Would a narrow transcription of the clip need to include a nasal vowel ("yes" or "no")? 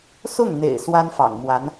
no